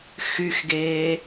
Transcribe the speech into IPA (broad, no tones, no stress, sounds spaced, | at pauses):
x y x ɡ eː